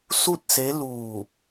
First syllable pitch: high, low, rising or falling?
falling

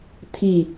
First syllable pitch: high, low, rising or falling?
falling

